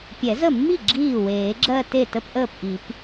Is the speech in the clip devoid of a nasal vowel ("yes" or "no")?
yes